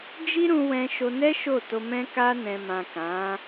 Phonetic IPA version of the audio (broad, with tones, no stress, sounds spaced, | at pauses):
d͡ʒ i˦ ɾ ũ˧ w ɛ̃˧ ʃ o˧ n ɛ˦ ʃ o˦˨ t o˧ m ɛ̃˧ k a˧ n ɛ̃˨ m ã˨ k ã˨˦